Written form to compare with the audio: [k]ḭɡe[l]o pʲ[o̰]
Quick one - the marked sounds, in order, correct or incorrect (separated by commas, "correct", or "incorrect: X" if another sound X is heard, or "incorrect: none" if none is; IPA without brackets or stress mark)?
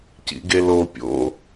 incorrect: c, correct, correct